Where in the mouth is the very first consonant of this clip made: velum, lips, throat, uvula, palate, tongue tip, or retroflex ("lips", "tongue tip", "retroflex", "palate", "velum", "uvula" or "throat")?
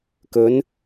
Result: velum